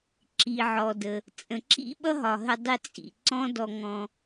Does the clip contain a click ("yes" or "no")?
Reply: yes